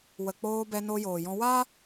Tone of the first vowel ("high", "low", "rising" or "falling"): low